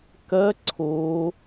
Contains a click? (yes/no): yes